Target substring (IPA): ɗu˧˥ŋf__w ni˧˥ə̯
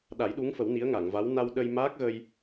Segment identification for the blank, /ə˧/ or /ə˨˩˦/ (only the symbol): ə˨˩˦